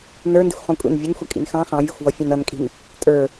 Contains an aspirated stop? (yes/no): no